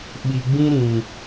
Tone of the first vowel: low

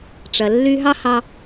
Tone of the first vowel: low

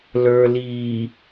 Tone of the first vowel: low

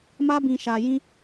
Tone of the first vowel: high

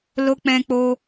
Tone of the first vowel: high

